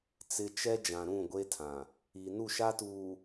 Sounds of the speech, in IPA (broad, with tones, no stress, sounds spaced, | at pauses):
t͡s ɪ˨ t͡ʃ ɛ˦ d͡ʒ ã˨ ɾ ũ˦˨ ɡʷ e˦ tʰ ã˨ | i˨ n u˦˨ ʃ a˦ t uː˨